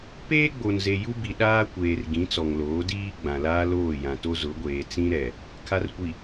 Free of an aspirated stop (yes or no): no